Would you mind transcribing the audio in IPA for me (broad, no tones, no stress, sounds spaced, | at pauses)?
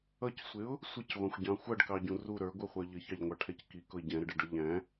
ʌ c sʷ ɪ ʊ̯ | sʷ ɪ c ʁʷ ɑ̃ xʷ ɟ ɑ̃ xʷ ʌ ɖ k ɑ ɟ ũ r u ɾ ə˞ ɡʷ ə˞ χʷ ə˞ ʎ ə ç ɑ ʎ ŋʷ ɑ ʈʰ ɛ c k i k ʊ ɪ̯ ɟ ɛ̃ ɾ ə ɖ ɛ ɖ ʌ ʎ æ̃